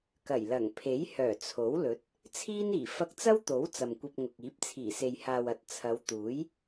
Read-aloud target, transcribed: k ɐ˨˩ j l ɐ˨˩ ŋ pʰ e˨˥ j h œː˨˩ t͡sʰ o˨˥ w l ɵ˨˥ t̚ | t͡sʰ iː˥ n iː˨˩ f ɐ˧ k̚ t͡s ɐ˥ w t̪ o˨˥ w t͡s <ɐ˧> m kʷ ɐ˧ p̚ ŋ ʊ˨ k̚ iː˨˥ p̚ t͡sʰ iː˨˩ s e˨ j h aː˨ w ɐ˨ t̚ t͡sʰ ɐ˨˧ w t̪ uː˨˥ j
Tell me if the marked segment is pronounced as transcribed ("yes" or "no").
no